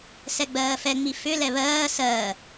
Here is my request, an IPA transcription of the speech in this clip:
s ɛ ɡ͡b ɜː f ɛ ŋ͡m i f ʏ l ɛ β ɜː s ɜː

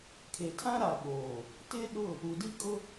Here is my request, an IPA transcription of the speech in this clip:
kʰ e˨ tʰ ã˦ ɾ a˨ ɓ oː˨ | t ɪ˦ ɗ ʊ˦˨ | u˨ d i˦ kʼ ʊ˦

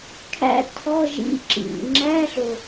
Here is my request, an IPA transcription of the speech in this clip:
kʰ æ̰˦˥ tʰ ɔ˧˥˧ ʒ ḭ˧˥˧ ǁ ḭ˨˩ ŋ͡ǁ æ˧˥˧ ɬ o˨˩

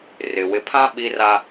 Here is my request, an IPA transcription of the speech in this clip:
r ɪ˨ w ɪ˨ pʰ ã˦ ɓ i˦ r a˦

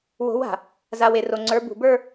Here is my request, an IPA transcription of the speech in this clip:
w o̤˨˦ w a̤˨ | z a˨ w e˨ r o˨ ŋ͡ǀ ə˞˨˦ b ṳ˨ b ə˞˦

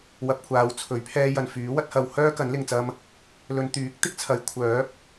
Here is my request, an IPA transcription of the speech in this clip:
w ɐ˧ p̚ kʷʰ aː˨˧ w t͡sʰ ɵ˨˥ ɥ pʰ ɛː˧ j ɐ˨ n f yː˨˥ w ɐ˧ t̚ h ɐ˨ w h œː˥ k ɐ˨˥ n l ɪ˨ ŋ t͡s ɐ˧ m | l ɵ˧ n t̪ yː˨˥ k̚ t̪ ɪ˥ k̚ t͡sʰ ɐ˨˥ j kʷʰ œː˨˥ p̚

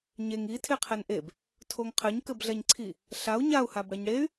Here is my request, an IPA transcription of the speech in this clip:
ɲ e ŋ i tʰ e qʰ ɛ n ʔ e b | tʰ o ŋ qʰ ɘ ɲ k ɘ b ɮ ɛ ɲ ǀʰ i | ɬ a u̯ ɲ a u̯ h a b ɽ ɛ ɲ ɽ e y̯

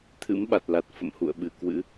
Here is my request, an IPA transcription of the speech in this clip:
t̪ʰ ɨ̰˧˥ m ɓ a˨˩ t̚ l a˨˩ t̚ f ə̰˧˨ m h ṵ˧˨ ə̯ ɓ ɨ˧˩ k w ɨ̰˧˥

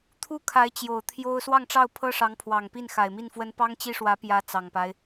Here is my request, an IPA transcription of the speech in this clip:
t̪ʰ u˥˩ kʰ a˧˥ ɪ̯ t͡ɕ j o˨˩ ʊ̯ t̪ʰ j o˥ ʊ̯ s w ɑ˥˧ ŋ ʈ͡ʂ ɑ˥˩ ʊ̯ pʰ ɤ˥ ʂ ɑ˧˥ ŋ pʰ w ɑ˨˩ ŋ p i˥˩ n x a˨˩ ɪ̯ m i˥˩ n f w ə˥ n p ɑ˥ ŋ t͡ɕ i˥ ʂ w ä˧˥ p j ä˧˥ t͡s ɑ˨˩ ŋ p a˦ ɪ̯

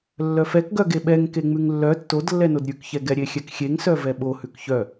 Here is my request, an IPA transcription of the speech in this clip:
lː œ f ɛ k ɡ œ ɡ e ɓ ɛ ŋ k e ŋ͡m ʉ ŋ lː œ tː o d lː ɛ n o d ɾʲ ʉ k ç ɛ ɡ ɛ ɾʲ e xʲ ɛ k xʲ e ŋ s œ v ɛ ɓ o h ʉ k ç œ

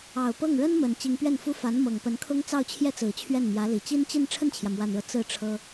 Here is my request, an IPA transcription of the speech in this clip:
ɑ˨˩ ʊ̯ p ɤ˥˩ ŋ ɻ ə˥ n m ə˨˩ n t͡ɕ i˧˥ ŋ p ɥ ɛ˥˩ n f u˥ f a˧˥ n m ɤ˨˩ ŋ p ə˧˥ n kʰ ʊ˥ ŋ t͡s ɑ˥˧ ʊ̯ t͡ɕʰ j ɛ˥˩ t͡s ɹ̩˨˩ t͡ɕʰ ɥ ɛ˥˩ n m j ä˧˥ l i˨˩ t͡ɕ i˥ n t͡ɕ i˥˧ n ʈ͡ʂʰ ə˥˩ n t͡ɕʰ j ä˩ m w a˨˩ n ɻ ɤ˦ t͡s ɹ̩˥˩ ʈ͡ʂʰ ɤ˥

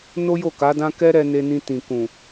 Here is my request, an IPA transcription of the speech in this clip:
n o˦ j o˦˨ k a˨˦ d ã˦ k ɛ˦ ɾ ɛ˧ n e˧ n ĩ˧ t ĩ˨ k ũ˨

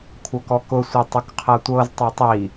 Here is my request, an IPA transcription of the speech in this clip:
kʷʰ ɤ k ɔ k ʊ sʷ i tˤ ʊ k qʰ ɤ tʷ ɤ z tˤ o tˤ i

